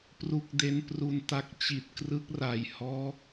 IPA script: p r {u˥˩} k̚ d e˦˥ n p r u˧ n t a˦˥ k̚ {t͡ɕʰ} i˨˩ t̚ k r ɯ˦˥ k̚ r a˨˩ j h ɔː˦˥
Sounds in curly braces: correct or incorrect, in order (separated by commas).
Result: incorrect, incorrect